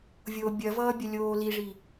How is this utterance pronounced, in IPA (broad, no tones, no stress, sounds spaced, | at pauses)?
vʲ o bʲ ɐ v ʌː bʲ ɐ lʲ oː l i ʐ i